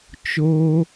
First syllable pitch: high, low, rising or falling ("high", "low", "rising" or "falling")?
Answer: high